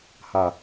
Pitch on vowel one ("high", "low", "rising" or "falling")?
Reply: low